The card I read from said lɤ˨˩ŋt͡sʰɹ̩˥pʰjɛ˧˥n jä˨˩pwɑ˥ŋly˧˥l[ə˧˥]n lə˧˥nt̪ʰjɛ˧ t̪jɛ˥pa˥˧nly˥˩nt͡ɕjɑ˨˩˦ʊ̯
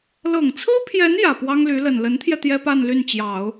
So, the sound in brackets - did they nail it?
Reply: no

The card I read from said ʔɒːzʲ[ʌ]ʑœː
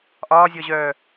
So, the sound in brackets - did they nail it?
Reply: no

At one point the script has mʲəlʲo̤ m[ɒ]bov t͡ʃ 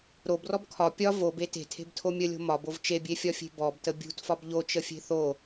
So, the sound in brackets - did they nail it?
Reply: yes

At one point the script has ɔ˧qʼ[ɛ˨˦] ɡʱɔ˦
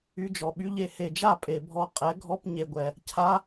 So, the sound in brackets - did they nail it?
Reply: yes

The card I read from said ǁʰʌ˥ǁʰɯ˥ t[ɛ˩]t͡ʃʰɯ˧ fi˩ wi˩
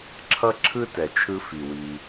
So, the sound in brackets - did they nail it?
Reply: yes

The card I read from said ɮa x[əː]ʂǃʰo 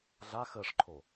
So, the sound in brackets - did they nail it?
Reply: yes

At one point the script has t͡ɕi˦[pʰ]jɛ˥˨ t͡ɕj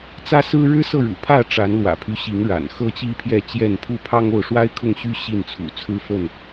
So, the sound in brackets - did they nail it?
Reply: yes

